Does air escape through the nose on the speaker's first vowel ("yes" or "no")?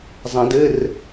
yes